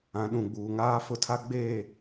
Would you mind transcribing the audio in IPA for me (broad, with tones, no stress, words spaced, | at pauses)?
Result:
ã˨˦ɗũ˨ɡ͡buː˨ŋaː˦ fʊ˦tʰa˦ ɡ͡beː˦˨